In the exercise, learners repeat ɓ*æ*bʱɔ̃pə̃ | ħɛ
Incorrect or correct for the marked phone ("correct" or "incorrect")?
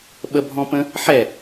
incorrect